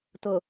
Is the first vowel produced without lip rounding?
no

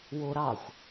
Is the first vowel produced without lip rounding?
no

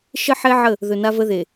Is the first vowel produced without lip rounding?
yes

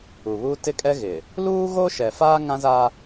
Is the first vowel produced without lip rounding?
no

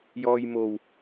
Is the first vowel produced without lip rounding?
no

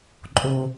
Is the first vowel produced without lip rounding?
no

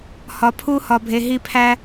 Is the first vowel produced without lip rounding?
no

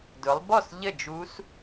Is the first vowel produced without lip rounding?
no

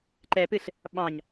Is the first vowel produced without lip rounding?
yes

